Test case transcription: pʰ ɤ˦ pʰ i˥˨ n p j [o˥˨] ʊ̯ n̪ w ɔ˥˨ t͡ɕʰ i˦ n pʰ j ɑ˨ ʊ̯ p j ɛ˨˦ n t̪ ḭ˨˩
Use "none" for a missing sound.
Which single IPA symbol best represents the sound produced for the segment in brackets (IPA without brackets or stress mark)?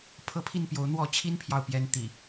o˨˦